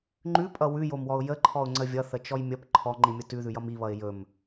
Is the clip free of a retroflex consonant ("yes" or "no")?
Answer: yes